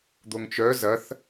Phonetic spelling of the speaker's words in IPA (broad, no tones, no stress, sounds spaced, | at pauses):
d̪ o ŋ t͡ʃ œ z ɐ θ